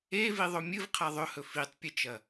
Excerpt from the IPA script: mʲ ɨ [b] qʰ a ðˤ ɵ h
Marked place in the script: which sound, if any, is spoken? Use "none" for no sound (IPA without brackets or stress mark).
v